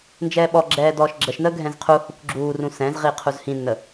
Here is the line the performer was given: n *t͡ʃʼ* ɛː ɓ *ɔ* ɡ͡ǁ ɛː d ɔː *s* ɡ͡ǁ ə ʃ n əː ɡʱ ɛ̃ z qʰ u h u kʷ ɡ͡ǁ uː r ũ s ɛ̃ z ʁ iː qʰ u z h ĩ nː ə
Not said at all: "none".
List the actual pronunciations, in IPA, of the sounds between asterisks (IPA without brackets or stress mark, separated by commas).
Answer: d͡ʒ, ɔ, ʃ